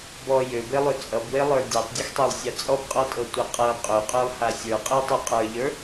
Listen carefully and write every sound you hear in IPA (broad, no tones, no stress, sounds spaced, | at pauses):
b ɔ j ø b e lˠ ø t͡sʼ ʌ b w e lˠ ə˞ dʲ ɤ tˤ dʲ ʌ x tˤ ø lˠ sʲ a t͡sʼ ɔ b qʼ ɔ tʼ ɤ tʷ a qʼ ɤ qʼ ø qʼ ø lˠ h a sʲ ə˞ qʼ e tˤ ø qʼ ə˞ ʎ ə˞